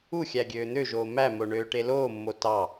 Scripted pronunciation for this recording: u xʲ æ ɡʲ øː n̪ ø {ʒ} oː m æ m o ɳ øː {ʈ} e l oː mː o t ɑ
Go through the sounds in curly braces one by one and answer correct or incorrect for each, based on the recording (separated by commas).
correct, correct